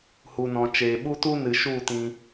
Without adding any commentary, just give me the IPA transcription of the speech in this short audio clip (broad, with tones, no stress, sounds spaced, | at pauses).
h u˨ n ɔ̃˨ t͡ʃ eː˨ ɓ u˦ t u˦ n ɨ˨ ʃ u˦˨ t ĩ˧